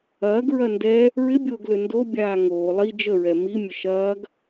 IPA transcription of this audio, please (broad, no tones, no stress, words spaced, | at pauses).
ɐːɡɹɐ ndɛ | ɹɪbʲoːɡlø ndobʲaː ŋoː lˠi d͡ʒəɹɛ mimʲə ʃɐːɡ